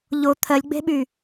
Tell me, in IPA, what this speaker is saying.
ʎo t̪ʰɜlʲɡ͡be̤ɓy

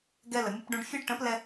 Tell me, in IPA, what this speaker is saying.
ɡɛ˧lə˨ mʲʌ˧pɖũ˧ɖfʲɜ˦ɖ ʈə̃˨˦plɛ˧

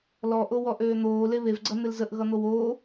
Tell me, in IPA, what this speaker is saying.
lɔʔo wɔʔøːn̪oː leβevɡ͡ǀʌ n̪ɪlzəʔ ɣʌn̪owoː

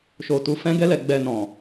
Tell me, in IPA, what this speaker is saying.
ʃo˨ tu˨fɛ̃˧ɡɛ˧lɛ˨ ɡ͡bɛ˨nɔ̃˨

